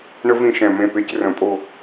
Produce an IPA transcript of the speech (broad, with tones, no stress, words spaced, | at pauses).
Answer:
ɳə˥ vĩ˦˨ʃɛ̃˨˩mẽ˦˨pe˧˥˧c rə̃˧˩˧pʼo˦˨